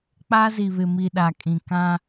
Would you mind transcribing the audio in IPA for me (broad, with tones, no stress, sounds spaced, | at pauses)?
k͡p a˦ z i˨ β ɪ˨ m i˨ ɗ a˨ kʼ ĩ˨ k ã˦